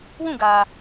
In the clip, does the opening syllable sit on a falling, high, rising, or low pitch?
falling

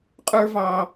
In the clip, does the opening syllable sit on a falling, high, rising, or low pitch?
high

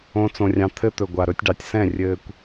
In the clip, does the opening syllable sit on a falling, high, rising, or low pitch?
high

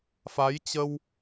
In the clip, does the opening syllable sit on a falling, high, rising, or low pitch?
rising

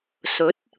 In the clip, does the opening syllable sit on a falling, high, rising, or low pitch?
rising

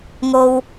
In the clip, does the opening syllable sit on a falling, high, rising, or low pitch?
low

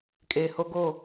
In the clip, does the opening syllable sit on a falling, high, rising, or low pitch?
low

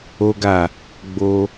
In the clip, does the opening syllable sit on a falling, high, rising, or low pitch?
high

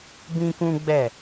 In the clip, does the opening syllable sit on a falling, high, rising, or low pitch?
high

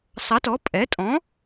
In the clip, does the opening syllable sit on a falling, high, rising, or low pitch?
rising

